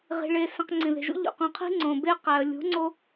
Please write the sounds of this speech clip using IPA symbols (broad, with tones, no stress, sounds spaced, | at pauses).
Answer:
ʁ i̤˨ ɭ e˨ s ẽ˨ q ŋ͡ǀ ĩ˨ ð e̤˨ ʒ ṵ˦ ʎ ṵ˨ q ũ˨ qʰ i̤˦ ŋ͡ǀ õ˨ b e˦ q æ˨ ə̯ lʲ ṳ˨˦ ŋ͡ǀ o˦